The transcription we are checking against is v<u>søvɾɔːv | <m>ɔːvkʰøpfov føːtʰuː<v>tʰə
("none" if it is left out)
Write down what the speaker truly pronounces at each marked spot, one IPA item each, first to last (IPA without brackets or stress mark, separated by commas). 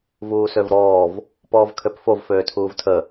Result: uː, p, v